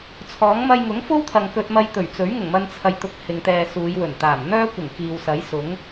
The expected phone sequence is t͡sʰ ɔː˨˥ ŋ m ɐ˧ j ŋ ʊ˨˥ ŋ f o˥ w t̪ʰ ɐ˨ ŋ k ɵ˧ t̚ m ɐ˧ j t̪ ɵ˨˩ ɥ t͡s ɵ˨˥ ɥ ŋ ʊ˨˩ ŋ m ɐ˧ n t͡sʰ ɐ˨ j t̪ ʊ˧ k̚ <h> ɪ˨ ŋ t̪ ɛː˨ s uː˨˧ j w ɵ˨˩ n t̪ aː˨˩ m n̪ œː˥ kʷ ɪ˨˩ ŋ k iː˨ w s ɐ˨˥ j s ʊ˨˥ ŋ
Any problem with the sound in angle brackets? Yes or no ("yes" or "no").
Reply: no